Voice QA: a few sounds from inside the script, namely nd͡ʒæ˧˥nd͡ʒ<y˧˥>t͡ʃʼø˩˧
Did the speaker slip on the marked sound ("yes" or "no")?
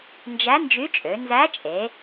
no